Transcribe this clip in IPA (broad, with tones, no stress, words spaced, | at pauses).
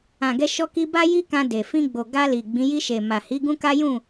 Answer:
ã˨ɡɛ˧ ʃɔ˧ki˧ ba˦ji˦kã˧ de˨ fĩ˧ɡ͡bo˨ ɡa˧ li˨ɡ͡bĩ˨˦ ji˧ʃe˨ma˨hi˨˦ ɡũ˦ka˦jũ˦˨